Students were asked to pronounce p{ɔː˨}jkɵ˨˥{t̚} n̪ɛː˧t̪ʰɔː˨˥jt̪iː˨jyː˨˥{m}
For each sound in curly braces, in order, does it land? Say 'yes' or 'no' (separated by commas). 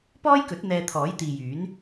no, yes, no